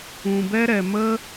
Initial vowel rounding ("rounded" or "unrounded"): rounded